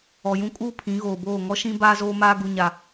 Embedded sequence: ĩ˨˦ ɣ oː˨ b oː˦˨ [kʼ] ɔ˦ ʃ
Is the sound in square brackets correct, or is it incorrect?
incorrect